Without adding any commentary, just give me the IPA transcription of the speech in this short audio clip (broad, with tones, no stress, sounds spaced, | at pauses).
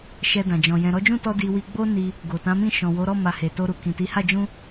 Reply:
ʃ ɛ˧ d ã˨ d͡ʒ ɔ̃˨ j ɛ̃˨ ɾ ɔ˨˦ d͡ʒ ũ˦˨ t ɔ˧ d i˧ w i˧ ɡ͡b o˦ n i˧ | ɡ o˨ t ã˨˦ m ĩ˦˨ ʃ ɔ̃˨ w o˨˦ ɾ ɔ˦˨ m a˨ h e˨ t o˧ ɾ u˨ k ĩ˨ t i˨˦ h a˦˨ d͡ʒ ũ˧